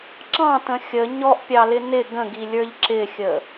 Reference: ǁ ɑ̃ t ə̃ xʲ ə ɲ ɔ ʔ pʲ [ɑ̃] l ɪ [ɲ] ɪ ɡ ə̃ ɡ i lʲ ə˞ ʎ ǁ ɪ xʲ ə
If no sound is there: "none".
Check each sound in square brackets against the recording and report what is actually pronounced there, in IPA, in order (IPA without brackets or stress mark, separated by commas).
ɑ, n